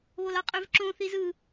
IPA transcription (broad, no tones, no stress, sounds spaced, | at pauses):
β o l ɑ qʼ ø v ǁ õ θ i z ɯ